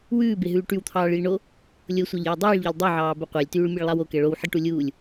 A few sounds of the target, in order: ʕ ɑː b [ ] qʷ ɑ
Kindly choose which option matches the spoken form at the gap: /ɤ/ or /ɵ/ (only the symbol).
ɵ